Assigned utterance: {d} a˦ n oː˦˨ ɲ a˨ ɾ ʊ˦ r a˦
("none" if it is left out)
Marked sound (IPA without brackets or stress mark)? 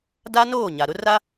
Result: d